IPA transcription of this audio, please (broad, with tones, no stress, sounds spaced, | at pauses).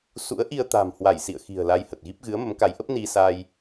s ṵ˧˥ ə̯ ʔ i˧ ə̯ t̪ a̤˨˩ m h w a˧˩ j s ḭ˧˨ ə̯ x i̤˨˩ ə̯ l a˧ j h ə˨˩ t̚ ɣ i˦˥ p̚ ɣ ɨ˨˦ ə̯ m ə˨˦ m k a˨˦ j ʔ ə˦˥ p̚ n i˧ s a˧ j